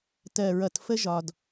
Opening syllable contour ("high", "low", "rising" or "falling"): low